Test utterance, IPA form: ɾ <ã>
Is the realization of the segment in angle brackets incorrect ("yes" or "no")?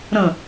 yes